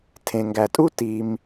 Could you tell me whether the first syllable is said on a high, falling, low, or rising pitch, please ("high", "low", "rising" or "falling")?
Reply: low